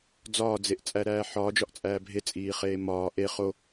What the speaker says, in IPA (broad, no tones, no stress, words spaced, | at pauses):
d͡zɒːd͡zeʔt͡sʼæɾæː ħɒːd͡ʒɒʔt͡sʼæː bʱet͡sʼiːχeː mɒː ʔe χo